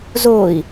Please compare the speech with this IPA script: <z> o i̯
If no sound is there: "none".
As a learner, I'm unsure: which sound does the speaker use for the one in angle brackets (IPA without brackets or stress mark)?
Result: z